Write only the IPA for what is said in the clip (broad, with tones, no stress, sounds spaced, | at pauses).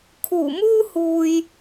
kʰ uː˨˩ m uː˥ h uː˨ j